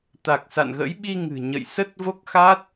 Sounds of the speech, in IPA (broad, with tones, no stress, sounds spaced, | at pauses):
t̪ a˨˩ k̚ s a̰˧˨ n ɣ ə̰˧˥ j ɓ i˧ ŋ ɨ̤˨˩ ɲ ə̰˧˨ j s ə˦˥ t̚ v o˦˥ k̚ x a˦˥ t̚